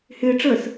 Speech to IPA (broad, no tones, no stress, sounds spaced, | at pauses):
h ɪː ʈ͡ʂ əː s